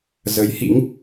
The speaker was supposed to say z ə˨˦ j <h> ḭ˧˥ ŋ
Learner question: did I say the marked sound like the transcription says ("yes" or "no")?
yes